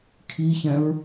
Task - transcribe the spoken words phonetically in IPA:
kʰ i ç ɛ̃ ɹ

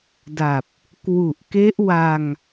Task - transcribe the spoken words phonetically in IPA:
d a˨˩ p̚ | k w u˨˩ ʔ k e˦˥ ʔ w a˧ ŋ

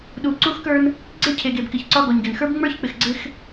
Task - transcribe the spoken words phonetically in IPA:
ɗ u˨ ǀ u˦ x k ə˞˦ n | ɡ͡ǀ e˦ cʰ e˨ ɡ e˨ b k ɪ˨ ç ǀ ɒ˦ ɡ ɔ˨ ɲ ɡ ɪ˨ n x ə˞˦ b ŋ͡m ə˞˦ ç k͡p ɪ˨ x ɡ͡ǀ ɪ˦ x

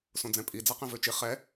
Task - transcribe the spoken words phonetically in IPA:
s õ d͡z ɛ̃ pʼ i d͡z a q ẽ v ø t͡ʃ i χ ɛ

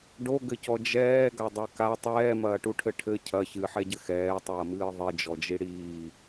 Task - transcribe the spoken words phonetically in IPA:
ɖ o ɡ ɘ c ɔ d͡ʒ ɛː ɡ a dˤ ɛ k a tˤ ɛː m ɐː ʈ u ʈʰ ɘ ʈʰ ɘ cʰ ɐ ç ɨ ħ ɛ ɟ ɘ x ɛː tˤ ɐː m ɨː ðˤ i d͡ʒ ɔ d͡ʒ i ɽ iː

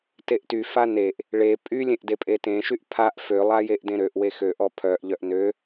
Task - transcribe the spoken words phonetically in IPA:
t e ʔ t y f a n e ʔ | ɭ e pʼ y lʲ ẽ ʔ d e pʼ e t ẽ ʃ y ʔ pʰ a ʔ f ø lˠ a j e ʔ d ẽ ɾ ø ʔ w e x ø ʔ ɔ pʰ œ ʔ ʎ œ ʔ n ø

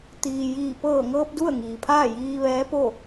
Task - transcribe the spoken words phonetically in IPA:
t̪ iː˩ j iː˧˩ p ɤː˧˩ ŋ ɤː˧ p̚ d u˥˨ ə̯ ŋ iː˩ pʰ aː˥˨ j iː˧ ʋ ɛː˧˥ p o˥˨

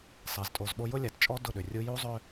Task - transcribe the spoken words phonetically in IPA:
sˤ e˨ z tʼ o˨ z ɓ o˦ j ʊ˦ lʲ a˨ t t͡ʃʼ ɔ˦ d ʊ˦˨ ɗ ʏ˨ rʲ u˦ j u˦ zˤ ʏ˦

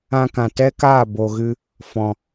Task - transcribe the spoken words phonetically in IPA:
ã˧ k ã˨ t ɛ˦ k aː˦˨ b o˨ ɣ ɨ˧ | f ɔ̃˨

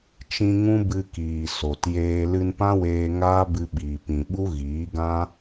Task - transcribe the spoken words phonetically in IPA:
t͡ʃ ĩ˧ ŋ ũ˦ b ɨ˧ k iː˨ s o˨ t j eː˧ l ɨ˧ n p ã˦ w eː˧ ŋ aː˦ b ɨ˧ ɓ iː˨ p ĩ˨ ɓ u˦ ɣ iː˨˦ ɡ ã˦

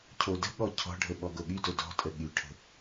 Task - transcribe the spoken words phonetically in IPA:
cʰ o d ə̤ ɠ ɔ cʰ ɔ̤ ɖʱ ə ɓ ɔ ɡ o ɠ y d o d ɔ̤ tʼ ə ɠ y ʈʰ ə̤

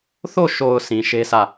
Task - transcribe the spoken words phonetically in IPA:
θ o˦˨ ʃ o˨ ʊ̯ s ĩ˨ ʃ e˦ s ä˦˨

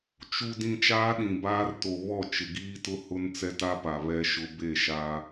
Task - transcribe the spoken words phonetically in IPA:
t͡ʃ u˨ d ĩ˨ t͡ʃ aː˦ ɗ ĩ˨ b aː˦ r t o˨ β ɔ˦˨ t͡ʃ ɪ˨ ɡ iː˦ t ʊ˦ h ʊ˦ n t͡s ɛ˦ t a˦ p a˨ β ɛ˦ ʃ ʊ˦ b e˦˨ ʃ a˦

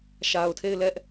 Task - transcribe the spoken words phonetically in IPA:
ʃ a˨ ʊ̯ tʰ e˦˨ ɪ̯ l ɛ˦ ʔ

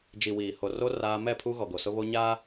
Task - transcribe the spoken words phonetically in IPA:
d͡ʒ i˨ w iː˨ h o˨ r o˦ r aː˦ m ɛ˦˨ pʰ u˦ ɣ ɔ˨ ɡ o˨ s ʊ˦ β o˦ ɲ aː˦

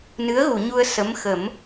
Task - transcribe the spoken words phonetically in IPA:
n ɨ˧˥ ə̯ ɣ u˨˩˨ ɲ u˧ ə̯ s ə˧˥ m x ə˨˩˦ m

